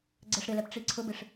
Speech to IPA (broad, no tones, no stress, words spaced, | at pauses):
ɡ͡ǀɛʂɾɪlɛp ʈ͡ʂiǀʰʊbɪʂ